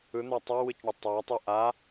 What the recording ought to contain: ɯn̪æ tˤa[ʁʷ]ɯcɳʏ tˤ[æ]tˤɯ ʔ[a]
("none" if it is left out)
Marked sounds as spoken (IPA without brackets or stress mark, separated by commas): w, æ, a